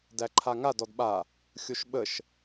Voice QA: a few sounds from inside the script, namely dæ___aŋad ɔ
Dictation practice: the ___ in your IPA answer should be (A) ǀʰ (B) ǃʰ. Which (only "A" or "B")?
B